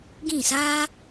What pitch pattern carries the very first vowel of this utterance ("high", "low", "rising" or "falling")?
falling